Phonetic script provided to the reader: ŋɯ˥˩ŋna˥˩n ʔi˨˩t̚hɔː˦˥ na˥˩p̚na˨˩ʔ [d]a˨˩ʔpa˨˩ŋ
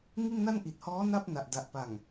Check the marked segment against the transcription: correct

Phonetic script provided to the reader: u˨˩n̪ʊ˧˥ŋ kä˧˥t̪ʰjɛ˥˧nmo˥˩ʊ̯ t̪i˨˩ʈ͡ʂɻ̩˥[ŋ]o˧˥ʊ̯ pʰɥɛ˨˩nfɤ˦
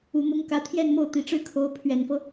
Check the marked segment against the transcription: incorrect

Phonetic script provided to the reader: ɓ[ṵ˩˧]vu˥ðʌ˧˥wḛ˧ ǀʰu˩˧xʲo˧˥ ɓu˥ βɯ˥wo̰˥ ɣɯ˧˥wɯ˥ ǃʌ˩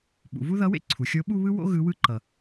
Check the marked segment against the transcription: correct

